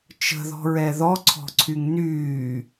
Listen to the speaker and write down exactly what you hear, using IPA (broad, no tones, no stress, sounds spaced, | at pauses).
t͡ʃ ə̤ ð ɔ̤ ɹ ɛ ð ɔ ǀʰ ɔ̤ ǀʰ y ŋ n yː